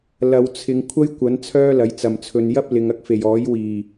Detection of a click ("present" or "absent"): absent